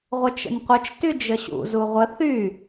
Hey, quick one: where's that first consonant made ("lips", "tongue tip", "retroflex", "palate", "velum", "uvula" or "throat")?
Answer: uvula